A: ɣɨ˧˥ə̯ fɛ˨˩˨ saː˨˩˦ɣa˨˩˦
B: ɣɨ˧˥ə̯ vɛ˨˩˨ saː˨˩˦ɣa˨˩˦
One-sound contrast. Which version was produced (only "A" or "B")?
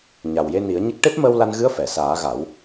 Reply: A